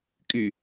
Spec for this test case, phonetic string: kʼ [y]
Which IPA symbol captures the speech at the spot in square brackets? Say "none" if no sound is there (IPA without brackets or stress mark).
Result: y